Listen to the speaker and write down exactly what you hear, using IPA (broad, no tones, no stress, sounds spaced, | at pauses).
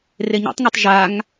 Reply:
r e ɲ ɛ̰ tˤ ŋ ɤ tˤ ʒ a ŋ